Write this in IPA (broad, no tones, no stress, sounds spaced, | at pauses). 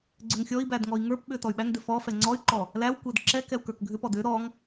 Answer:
ɡ͡ǀ ʏ ŋ xʲ ɔ i̯ b æ d ŋ ɔ i̯ ŋ ə˞ p ɓ ʏ t ɔ y̯ ɓ æ ŋ d ʏ f ɔ f ɛ ŋ͡ǀ ɔ y̯ ǃ ɔ | l æ w kʷ ɛ d ǁ ɛ k ɛ u̯ k ə˞ k ɡʱ ʏ p ɔ d ʏ ɾ ɔ ŋ